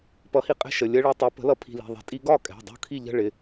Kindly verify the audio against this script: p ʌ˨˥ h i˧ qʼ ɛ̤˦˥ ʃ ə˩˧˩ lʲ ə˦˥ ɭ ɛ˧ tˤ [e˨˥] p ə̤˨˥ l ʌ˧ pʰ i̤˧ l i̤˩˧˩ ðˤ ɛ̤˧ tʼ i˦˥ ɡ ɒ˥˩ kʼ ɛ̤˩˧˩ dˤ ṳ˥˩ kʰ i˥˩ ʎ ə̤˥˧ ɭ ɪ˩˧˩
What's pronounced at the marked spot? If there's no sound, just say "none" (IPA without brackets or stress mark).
ɛ˨˥